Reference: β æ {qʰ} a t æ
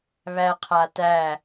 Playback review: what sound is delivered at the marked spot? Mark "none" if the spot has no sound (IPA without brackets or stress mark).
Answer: qʰ